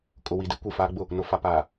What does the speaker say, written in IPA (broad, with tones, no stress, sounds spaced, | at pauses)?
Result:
kʼ ʊ˨ w i˨ d i˦ kʷ i˨ f aː˦ ɡ͡b ʊ˦˨ | n ʊ˨ f a˨ p aː˨